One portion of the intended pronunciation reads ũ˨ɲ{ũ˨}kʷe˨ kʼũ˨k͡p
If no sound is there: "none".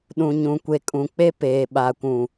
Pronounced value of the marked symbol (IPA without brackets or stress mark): ũ˨